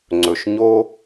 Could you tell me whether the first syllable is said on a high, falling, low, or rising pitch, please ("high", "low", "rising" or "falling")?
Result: low